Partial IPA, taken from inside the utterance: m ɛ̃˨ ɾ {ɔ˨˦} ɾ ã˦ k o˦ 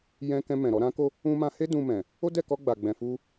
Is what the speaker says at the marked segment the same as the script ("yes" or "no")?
yes